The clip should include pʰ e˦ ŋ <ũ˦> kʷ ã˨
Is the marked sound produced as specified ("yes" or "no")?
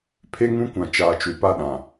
yes